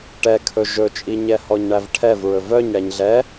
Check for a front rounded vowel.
present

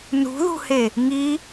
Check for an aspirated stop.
absent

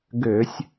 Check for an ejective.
absent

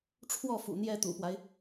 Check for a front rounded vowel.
absent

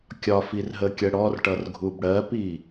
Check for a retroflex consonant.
present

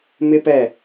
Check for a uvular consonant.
absent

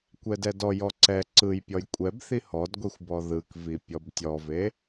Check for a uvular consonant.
absent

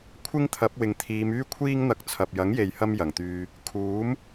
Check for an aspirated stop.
present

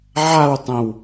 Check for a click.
absent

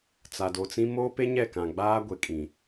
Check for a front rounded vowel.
absent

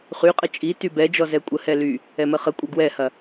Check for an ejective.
present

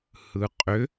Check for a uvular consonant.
present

